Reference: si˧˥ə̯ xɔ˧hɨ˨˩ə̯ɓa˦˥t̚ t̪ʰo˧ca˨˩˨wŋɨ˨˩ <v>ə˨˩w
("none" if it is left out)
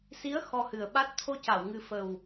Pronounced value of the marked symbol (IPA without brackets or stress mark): f